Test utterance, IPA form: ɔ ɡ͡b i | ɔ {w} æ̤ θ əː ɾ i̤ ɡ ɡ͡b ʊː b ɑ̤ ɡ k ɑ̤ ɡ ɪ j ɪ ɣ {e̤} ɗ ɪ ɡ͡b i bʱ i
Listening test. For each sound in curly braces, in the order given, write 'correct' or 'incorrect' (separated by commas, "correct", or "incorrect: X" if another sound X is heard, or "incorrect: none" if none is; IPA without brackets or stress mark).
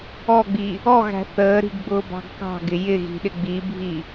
incorrect: ɣ, incorrect: i̤